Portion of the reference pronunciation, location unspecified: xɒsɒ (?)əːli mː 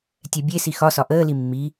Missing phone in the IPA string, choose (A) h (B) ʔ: B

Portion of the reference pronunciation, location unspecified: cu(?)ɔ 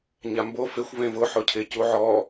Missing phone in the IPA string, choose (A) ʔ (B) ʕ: B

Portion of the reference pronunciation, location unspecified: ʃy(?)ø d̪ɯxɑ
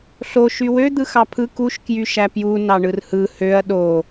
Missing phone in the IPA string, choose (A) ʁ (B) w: B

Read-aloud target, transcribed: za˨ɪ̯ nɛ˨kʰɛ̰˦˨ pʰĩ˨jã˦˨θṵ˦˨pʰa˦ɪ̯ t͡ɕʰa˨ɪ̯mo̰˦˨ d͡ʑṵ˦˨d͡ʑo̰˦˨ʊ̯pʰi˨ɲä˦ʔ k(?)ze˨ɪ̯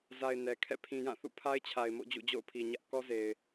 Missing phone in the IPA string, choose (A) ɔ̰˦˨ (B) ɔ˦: B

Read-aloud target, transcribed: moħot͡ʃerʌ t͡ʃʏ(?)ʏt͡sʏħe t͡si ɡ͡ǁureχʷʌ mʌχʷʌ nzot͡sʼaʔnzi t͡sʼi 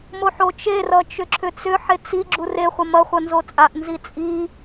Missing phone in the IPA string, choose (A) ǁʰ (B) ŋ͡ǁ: A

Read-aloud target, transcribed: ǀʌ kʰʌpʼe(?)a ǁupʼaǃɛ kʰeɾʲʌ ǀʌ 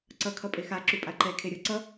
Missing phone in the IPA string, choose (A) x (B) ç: A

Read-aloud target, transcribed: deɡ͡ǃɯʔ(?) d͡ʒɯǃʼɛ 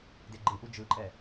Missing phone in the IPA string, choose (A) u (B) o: A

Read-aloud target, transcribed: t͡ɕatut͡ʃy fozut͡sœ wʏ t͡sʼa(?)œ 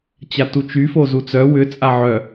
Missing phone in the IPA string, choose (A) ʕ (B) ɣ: A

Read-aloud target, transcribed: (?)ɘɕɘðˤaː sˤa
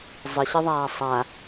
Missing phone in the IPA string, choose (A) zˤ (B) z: A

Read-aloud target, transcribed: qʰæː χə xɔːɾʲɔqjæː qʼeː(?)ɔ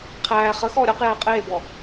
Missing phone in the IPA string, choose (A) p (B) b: B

